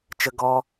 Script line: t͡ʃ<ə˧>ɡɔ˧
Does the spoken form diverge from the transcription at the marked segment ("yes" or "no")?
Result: no